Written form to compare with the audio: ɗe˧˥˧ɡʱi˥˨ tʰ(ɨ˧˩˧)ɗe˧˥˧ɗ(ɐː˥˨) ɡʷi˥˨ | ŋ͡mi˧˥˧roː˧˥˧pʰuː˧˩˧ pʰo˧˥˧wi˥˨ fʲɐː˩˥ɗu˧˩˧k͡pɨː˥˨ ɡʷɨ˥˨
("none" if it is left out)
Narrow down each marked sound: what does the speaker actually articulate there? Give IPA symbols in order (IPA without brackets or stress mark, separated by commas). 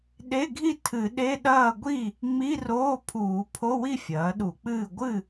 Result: ɨ˧˩˧, ɐː˥˨